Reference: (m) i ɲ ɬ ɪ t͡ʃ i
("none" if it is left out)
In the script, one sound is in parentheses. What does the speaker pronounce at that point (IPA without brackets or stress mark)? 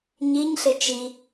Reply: ɲ